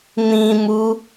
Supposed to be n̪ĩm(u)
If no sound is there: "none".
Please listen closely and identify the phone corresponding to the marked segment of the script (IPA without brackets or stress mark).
u